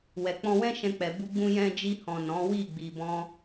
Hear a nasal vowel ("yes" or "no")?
yes